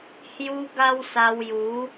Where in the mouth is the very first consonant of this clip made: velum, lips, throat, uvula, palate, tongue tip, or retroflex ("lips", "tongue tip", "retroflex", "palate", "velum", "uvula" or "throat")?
throat